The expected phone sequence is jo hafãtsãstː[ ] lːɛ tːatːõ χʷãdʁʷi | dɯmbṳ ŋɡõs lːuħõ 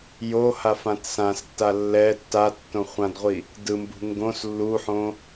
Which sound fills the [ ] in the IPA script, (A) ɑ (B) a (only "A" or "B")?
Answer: B